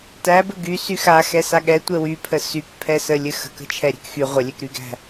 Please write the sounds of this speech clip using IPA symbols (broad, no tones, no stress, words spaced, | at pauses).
tæbɘ ɡy syxa xɛsaɠɛ tʷɛwypʰə sykpʰɛsə lʲɘxə̤kə̤t͡ʃʰɛ ɾʲæ̤kxy ʁʷəlʲɛkɾyɡæ̤